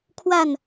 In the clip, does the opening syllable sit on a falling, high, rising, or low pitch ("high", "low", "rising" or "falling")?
falling